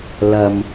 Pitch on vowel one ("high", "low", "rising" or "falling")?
low